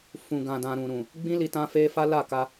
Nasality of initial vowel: nasal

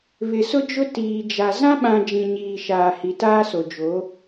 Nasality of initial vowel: oral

